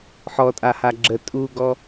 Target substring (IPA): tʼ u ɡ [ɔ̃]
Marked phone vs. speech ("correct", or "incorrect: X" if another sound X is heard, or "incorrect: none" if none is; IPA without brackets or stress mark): incorrect: ɔ